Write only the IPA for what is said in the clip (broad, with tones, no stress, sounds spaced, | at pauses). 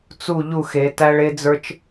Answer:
t͡s u˦˨ ʎ u˦˨ x e˨˦ t æ˦ ɭ e˦ d͡z ə˞˦ t͡ʃ